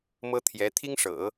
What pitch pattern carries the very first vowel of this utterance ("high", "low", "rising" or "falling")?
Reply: high